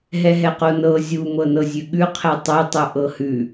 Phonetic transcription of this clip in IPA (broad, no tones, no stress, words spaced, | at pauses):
ɦɛɦɛqonɤ zʲu mɤnɤzʲʉɠʉ qʰɛtˤu tˤuʔɤhʉ